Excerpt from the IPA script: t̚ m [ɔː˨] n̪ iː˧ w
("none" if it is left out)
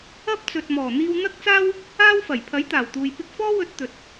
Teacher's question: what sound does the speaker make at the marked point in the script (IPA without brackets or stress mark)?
ɔː˨˩